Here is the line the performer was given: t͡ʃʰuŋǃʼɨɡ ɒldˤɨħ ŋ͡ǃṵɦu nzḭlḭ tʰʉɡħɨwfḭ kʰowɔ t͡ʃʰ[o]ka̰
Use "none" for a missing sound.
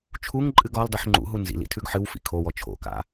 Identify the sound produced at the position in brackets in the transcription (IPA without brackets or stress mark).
o̰